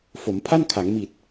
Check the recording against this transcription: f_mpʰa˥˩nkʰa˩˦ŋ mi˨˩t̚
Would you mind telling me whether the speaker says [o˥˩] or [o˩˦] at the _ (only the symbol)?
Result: o˩˦